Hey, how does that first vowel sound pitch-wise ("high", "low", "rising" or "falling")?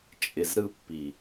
low